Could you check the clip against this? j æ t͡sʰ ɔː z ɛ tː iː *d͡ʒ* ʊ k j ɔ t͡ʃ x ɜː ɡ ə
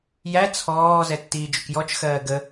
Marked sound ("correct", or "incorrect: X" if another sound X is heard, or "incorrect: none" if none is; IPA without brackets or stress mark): correct